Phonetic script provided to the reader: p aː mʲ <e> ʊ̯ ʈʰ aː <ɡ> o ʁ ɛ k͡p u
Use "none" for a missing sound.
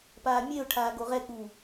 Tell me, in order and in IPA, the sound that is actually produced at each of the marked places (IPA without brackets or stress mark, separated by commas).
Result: e, ɡ